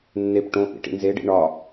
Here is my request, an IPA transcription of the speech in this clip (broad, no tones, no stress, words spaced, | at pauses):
nːep ʈõ ʔḭʈḭnzeɖḭ ɳɒ